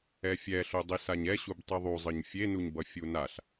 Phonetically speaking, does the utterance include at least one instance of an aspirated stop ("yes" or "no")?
no